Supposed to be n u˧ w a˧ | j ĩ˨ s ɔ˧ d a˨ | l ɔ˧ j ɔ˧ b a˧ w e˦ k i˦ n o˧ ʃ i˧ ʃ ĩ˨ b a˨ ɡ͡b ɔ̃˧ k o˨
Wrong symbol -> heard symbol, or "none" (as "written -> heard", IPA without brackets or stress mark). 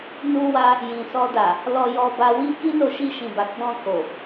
e˦ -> i˦